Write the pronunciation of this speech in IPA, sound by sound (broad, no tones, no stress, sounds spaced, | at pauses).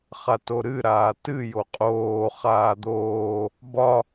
χ a t o ɾ ɨ ɾ aː t ɨ j o qʼ oː χ aː d̪ oː | b ɒ